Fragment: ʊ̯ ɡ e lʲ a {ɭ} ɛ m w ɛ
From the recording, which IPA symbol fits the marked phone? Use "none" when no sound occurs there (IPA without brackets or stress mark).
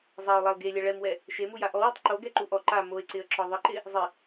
ɭ